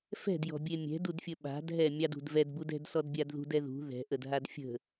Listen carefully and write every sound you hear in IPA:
f ɛ̤ d j ɔ̤ bʲ e mʲ ɛ̤ d u d fʲ ə ɓ a̤ d ɦ ɛ mʲ ɑ d ṳ d v ɛ d b u d ɛ̤ d s ɔ d bʲ a d ð ṳ d ɛ ð ṳ ð ɛ̤ ʔ ə d ɦ a d fʲ ə̤

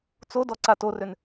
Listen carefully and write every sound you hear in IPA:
t͡s o d ɔ ǀ a t o r ø n

